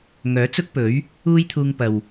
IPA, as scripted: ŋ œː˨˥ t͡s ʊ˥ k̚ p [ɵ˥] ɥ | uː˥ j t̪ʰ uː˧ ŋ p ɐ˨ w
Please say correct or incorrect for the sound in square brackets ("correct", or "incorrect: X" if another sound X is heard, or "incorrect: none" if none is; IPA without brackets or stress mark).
incorrect: ɵ˨˥